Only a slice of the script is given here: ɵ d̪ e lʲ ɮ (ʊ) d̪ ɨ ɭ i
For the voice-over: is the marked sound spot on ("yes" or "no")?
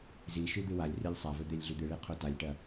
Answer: no